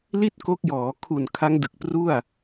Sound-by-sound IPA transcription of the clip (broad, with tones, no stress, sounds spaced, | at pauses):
l i˥˩ t̚ k o˦˥ k̚ j ɔː˩˦ kʰ u˨˩ n kʰ a˦˥ ŋ d ɯ˨˩ k̚ p r u˥˩ a̯